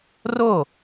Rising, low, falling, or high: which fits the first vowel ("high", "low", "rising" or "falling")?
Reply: falling